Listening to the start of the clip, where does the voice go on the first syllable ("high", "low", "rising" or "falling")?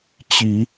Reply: rising